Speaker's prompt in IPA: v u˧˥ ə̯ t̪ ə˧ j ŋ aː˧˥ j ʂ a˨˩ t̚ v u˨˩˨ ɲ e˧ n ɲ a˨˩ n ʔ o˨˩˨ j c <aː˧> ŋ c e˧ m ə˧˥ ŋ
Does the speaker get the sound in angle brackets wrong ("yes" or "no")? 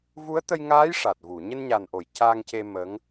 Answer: no